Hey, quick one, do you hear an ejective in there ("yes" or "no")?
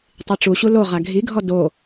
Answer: no